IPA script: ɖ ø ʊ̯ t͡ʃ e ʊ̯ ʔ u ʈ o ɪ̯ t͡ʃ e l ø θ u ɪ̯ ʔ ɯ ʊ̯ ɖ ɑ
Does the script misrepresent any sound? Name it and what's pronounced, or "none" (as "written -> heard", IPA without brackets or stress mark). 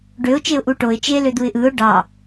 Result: θ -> d̪